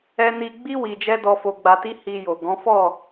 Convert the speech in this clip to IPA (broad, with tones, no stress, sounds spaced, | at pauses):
ɛ˧ n i˧ ɡ͡b i˦ w i˧ d͡ʒ ɛ˦ d ɔ˧ f o˧ ɡ͡b a˧ t i˦ h i˧ j o˨ ɡ ɔ̃˨˦ f ɔ˦˨